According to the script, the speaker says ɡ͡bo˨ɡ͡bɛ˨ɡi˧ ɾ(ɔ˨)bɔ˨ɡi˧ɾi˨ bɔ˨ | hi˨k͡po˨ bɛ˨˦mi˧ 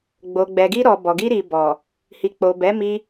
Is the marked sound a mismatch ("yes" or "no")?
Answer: no